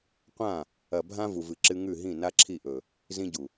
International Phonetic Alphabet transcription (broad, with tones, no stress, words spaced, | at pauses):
qʷã˦˨ | ɐ˨bʱã˦ vu˨vɨ˨ǁɨ˦ ŋʉ˦˨ɦĩ˦˨ na˦ǁʰi˦˨ʔɵ˨ | zĩ˦ɟu˨